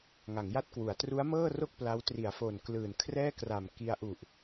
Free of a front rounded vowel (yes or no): yes